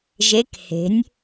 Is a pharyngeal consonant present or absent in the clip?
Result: absent